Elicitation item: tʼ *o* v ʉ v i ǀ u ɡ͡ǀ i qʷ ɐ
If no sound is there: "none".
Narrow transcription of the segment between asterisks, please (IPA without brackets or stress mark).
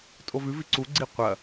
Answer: o